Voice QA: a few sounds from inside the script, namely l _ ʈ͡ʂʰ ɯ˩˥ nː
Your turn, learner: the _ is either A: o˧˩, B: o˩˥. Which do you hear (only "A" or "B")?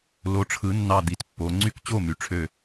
B